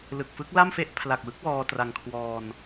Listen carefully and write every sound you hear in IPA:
l ɯ˨˩ k̚ f ɯ˦˥ k̚ l a˥˩ m f e˥˩ ʔ pʰ l a˨˩ k̚ w ɯ˦˥ k̚ w ɔː˧ t r a˧ ŋ kʰ w ɔː˧ n

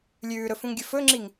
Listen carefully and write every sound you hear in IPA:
lʲ ʉː ɾ ɵ f ũ ŋ ɡʲ ɵ f ɵ ŋ͡ǁ i ŋ

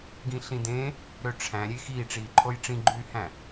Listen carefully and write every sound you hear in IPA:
ɡ ĩ ɬ ĩ d ẽ | ɾ ø ʈ͡ʂʰ æ̃ ɾʲ e x iː ʈ͡ʂ iː ǃʰ o j ʈ͡ʂ ĩ ɡ͡ǃ yː h æ̃

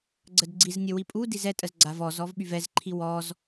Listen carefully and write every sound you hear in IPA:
ɡ͡ǀ ə d ɡ͡ǀ i z nʲ ə w i pʼ u d i z ɛ tʼ ə z ɡ͡ǀ a v ɔ z ɔ v ɓ y v ɛ z ǃʰ i w ɔ z

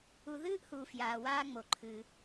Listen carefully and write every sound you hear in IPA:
u˨ ð ɨː˦ ʔ h u˨ f j aː˨ w aː˦ ŋ͡m o˨ ǃʰ ɨː˦

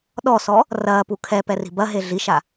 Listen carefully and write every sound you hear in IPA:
ɗ ɔ s ɔ | r ɐː p u kʰ ɛ p ɛ r i̤ b ɐ ɦ e ɮ i ʃ a

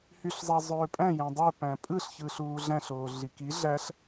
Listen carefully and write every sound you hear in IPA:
h y ɬ zˤ ɑ zˤ øː pʼ æ̃ j æ̃ dˤ ø p æ̃ pʼ ɯ ɬ ç ɯ ɬ uː ɮ æ̃ ɬ oː ɮ i k i ɮ æ ɬ

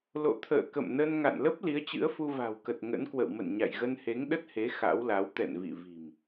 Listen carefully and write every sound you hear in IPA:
l o̰˧˨ t̪ʰ ə̰ː˧˨ k ə̰˧˨ m n ə˧ n ŋ a̰˧˨ n l ə˦˥ p̚ l i˨˦ ə̯ t͡ɕ ɨ̰˧˥ ə̯ f u˧ v a̤˨˩ w k ə˨˩ t̚ ŋ ə̰˧˥ n k w ə̰˧˨ w m ə̰˧˨ n ɲ a̰˧˨ j ɣ ə˧ n h e˨˦ ŋ ɗ ə˦˥ t̚ h e˨˦ x a̰˧˥ w l a˨˦ w t̪ ɛ̰˧˨ n v ḭ˧˨ v i̤˨˩ m

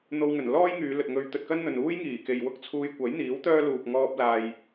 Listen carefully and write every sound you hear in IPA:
n̪ o˧ w ŋ ɵ˨˩ n l ɔː˥ j ŋ yː˨˧ l ɵ˨ t̚ ŋ ɵ˧ ɥ t̪ ɵ˧ t̚ k ɐ˥ n n̪ ɵ˨ n uː˥ j ŋ iː˨˩ k e˨ j w ʊ˥ k̚ t͡sʰ uː˧ j kʷ ɐ˨˥ j n̪ iː˨˥ w t̪ œː˥ l uː˨ k̚ ŋ ɔː˥ p̚ l aː˧ j

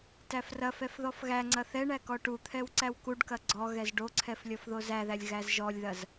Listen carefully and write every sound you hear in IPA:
t æ f r ɐ f ɛ f ð ɔ f ɣ æ ŋ͡ǀ ɐ θ ɛ ɳ æ k ɔ ʈ u t̪ʰ ɛ w ǀ æ w k u ɖ k ɐ ɡ͡ǀ ɔ ɣ ɛ z ɖ o ǀʰ ɛ f lʲ ɔ f ð o z æ ð æ lʲ ɣ æ z ʒ ɔ lʲ ð ɐ z

